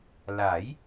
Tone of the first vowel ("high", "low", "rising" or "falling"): rising